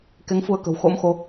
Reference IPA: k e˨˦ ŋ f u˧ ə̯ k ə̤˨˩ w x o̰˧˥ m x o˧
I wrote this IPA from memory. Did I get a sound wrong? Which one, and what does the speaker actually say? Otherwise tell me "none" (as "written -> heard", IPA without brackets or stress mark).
none